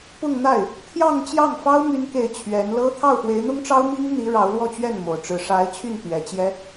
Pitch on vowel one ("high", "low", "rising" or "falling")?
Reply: falling